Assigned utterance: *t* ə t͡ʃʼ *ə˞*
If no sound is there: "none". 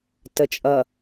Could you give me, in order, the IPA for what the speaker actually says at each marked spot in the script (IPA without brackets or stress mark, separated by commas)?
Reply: t, ʌ